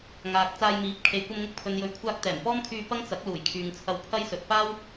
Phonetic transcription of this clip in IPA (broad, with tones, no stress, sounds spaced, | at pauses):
ŋ aː˨ k̚ t͡s aː˧ j m iː˨˥ p̚ kʰ e˨ j kʷ ɐ˧ m ŋ ʊ˧ k̚ pʰ ɵ˨ n j ɵ˨˥ ɥ kʷʰ aː˧ k̚ t̪ ɛː˨˩ m p ɔː˥ m kʰ yː˧ p ɐ˥ ŋ t͡s ɐ˨˥ k̚ l uː˨˩ j kʰ yː˨ ŋ t͡sʰ ɐ˧ w pʰ ɐ˥ j s ɵ˨ t̚ p aː˥ w